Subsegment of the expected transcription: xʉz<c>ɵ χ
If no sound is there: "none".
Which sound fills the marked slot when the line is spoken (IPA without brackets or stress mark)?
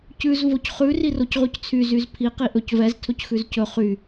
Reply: c